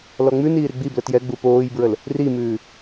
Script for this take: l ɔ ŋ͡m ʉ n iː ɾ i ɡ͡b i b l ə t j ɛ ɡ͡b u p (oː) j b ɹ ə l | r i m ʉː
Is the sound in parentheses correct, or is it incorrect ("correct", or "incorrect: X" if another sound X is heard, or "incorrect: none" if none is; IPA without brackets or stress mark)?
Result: correct